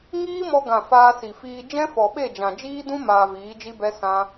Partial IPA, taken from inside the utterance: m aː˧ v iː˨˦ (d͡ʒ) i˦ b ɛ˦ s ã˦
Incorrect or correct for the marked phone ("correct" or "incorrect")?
correct